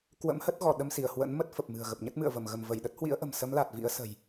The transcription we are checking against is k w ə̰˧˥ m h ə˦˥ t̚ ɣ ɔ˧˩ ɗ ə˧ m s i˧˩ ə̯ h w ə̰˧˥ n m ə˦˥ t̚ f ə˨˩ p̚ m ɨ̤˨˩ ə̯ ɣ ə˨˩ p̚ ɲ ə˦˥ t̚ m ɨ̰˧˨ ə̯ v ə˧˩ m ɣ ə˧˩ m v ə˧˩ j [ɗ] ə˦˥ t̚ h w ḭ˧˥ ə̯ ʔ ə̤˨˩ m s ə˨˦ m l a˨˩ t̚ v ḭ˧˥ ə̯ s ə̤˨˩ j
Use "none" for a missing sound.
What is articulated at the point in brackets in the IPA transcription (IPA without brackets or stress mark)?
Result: ɗ